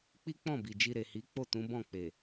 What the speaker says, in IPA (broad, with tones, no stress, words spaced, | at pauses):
k͡pi˦k͡pɔ̃˦˨ bi˨d͡ʒi˧ ɾe˨hi˨˦ k͡po˦˨tũ˨˦bɔ̃˦˨ k͡pe˨